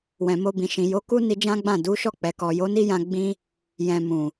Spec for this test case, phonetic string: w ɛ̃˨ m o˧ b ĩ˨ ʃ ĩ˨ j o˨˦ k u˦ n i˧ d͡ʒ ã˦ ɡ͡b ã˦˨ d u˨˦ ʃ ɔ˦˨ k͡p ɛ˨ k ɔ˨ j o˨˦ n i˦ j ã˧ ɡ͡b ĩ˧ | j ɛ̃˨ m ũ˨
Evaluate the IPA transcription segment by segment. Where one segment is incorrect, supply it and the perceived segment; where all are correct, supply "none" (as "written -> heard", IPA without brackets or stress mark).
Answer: none